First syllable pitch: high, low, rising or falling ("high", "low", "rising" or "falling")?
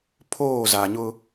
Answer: falling